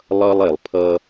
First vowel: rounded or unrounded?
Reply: unrounded